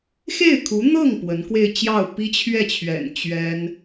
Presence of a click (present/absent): absent